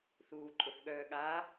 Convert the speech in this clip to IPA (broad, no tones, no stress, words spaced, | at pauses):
θuːǃʼʊθɠœːɠaː